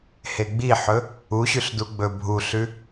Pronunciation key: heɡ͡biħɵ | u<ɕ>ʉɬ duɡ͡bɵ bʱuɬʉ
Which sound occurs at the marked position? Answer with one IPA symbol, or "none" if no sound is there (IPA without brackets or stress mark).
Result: ɕ